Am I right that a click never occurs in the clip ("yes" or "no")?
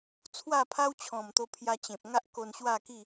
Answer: yes